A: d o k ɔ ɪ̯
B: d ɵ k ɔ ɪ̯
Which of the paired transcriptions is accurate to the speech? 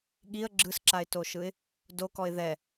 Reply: A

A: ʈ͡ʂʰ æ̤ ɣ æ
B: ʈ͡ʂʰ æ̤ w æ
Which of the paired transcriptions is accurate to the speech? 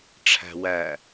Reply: B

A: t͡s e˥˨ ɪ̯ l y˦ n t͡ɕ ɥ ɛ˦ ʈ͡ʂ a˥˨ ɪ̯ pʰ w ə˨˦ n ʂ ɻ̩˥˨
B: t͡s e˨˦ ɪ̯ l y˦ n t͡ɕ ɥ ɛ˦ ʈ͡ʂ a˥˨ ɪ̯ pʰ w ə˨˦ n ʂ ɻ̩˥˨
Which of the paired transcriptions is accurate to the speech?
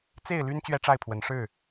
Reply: A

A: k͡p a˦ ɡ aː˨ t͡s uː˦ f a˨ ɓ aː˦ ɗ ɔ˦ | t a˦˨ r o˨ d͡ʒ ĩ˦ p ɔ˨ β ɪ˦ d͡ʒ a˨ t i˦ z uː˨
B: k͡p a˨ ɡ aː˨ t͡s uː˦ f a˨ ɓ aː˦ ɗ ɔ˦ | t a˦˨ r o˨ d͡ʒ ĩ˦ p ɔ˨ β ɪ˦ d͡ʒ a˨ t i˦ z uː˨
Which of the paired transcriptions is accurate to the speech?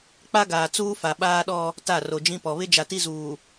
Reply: A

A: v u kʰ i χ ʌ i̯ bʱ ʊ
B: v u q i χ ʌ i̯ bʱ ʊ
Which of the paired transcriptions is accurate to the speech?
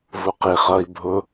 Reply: B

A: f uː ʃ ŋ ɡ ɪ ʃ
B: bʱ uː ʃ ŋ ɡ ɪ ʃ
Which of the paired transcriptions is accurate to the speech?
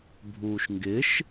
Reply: B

